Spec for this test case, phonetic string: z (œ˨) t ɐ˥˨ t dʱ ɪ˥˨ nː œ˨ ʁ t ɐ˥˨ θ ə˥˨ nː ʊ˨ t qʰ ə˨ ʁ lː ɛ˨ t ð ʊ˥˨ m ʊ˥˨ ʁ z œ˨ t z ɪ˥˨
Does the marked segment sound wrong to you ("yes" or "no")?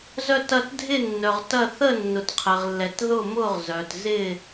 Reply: yes